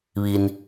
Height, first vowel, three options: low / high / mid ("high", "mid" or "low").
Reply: high